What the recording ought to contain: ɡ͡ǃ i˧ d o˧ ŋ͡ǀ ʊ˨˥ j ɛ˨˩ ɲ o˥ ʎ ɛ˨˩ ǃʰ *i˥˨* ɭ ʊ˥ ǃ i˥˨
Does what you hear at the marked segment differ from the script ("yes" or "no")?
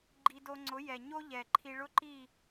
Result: yes